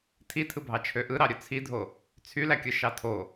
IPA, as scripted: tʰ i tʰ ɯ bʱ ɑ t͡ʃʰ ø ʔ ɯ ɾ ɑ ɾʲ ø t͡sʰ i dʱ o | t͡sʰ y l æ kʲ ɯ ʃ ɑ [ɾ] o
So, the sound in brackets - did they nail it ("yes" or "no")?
no